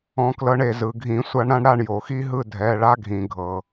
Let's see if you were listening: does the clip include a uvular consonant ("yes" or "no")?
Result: no